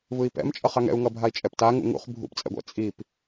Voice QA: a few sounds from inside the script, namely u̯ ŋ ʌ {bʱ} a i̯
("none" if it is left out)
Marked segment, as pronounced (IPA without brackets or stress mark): bʱ